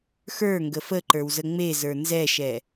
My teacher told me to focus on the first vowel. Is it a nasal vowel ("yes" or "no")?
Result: no